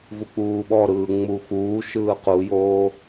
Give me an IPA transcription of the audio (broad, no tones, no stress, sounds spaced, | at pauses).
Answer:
v u k͡p uː ɓ ɔ ɾ ɯː ŋ͡m u x uː ʃ ɯː q u j oː